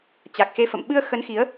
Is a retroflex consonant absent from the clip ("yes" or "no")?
yes